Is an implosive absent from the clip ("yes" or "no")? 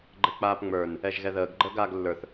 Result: yes